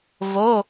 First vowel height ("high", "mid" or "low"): mid